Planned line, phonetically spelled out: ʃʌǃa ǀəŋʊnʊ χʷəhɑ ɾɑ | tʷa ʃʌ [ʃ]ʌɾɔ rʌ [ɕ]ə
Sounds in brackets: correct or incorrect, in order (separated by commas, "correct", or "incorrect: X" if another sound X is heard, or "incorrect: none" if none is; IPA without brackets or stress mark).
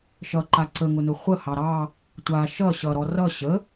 incorrect: ɕ, correct